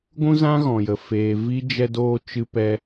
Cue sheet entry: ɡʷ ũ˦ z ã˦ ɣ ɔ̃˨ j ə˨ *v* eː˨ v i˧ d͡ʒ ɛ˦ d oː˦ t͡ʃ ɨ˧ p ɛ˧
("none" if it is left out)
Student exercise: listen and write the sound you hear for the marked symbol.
f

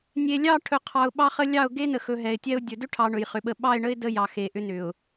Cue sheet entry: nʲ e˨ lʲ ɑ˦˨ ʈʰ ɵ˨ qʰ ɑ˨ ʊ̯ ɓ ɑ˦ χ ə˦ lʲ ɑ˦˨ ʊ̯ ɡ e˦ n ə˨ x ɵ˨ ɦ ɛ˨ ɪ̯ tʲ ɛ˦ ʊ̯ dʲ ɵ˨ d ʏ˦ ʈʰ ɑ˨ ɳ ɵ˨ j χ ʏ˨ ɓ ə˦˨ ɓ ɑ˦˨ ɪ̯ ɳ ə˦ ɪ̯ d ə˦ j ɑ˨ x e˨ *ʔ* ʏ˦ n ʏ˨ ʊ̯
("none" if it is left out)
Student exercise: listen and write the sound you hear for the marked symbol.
ʔ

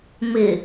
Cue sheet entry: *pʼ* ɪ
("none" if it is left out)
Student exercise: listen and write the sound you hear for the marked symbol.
m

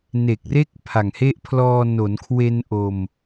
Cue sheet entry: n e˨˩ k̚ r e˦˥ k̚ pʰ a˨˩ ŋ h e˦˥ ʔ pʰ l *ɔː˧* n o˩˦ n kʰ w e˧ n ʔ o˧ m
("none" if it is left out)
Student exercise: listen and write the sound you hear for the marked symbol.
ɔː˧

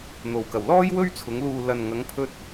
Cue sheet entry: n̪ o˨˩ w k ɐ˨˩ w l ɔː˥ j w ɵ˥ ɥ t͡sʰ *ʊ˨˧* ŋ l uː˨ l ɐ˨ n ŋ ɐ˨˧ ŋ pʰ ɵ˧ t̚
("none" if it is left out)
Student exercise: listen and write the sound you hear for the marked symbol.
ʊ˨˧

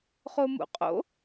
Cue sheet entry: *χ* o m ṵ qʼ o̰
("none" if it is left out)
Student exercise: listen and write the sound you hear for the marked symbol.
χ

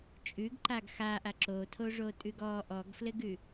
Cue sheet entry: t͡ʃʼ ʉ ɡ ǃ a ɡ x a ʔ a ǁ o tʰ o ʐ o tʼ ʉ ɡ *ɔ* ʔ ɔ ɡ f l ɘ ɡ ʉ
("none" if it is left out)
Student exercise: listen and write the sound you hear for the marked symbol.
ɔ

